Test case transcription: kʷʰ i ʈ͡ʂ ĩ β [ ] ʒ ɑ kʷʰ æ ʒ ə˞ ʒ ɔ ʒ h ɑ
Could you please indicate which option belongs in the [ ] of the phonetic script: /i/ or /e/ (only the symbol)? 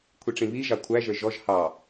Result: i